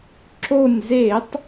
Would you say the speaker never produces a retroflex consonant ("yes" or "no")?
yes